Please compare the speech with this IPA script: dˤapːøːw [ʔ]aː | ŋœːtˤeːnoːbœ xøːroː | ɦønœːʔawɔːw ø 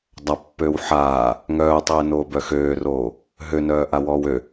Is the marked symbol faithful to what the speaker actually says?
no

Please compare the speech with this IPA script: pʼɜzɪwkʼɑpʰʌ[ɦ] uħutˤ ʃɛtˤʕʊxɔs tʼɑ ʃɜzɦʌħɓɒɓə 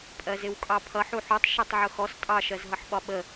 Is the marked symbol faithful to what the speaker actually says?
no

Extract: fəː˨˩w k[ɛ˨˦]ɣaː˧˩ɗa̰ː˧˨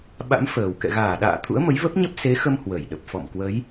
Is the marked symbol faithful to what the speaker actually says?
no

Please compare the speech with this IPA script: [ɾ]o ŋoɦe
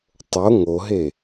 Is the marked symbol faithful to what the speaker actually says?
no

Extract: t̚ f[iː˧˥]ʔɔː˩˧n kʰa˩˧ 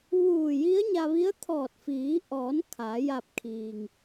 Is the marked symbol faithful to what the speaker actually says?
no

